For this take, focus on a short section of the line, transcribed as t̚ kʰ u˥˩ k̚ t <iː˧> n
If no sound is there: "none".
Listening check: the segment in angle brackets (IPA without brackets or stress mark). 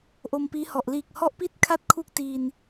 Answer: iː˧